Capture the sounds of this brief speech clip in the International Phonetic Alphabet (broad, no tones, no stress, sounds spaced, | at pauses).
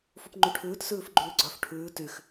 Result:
f u p ŋ͡ǃ y ʈʰ ʉː t s ʉː f ɡ͡ǃ ʉː ɡ͡ǀ œ f ʈʰ ʉː t y x